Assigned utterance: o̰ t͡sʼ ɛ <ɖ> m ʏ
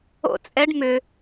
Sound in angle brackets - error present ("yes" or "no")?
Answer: no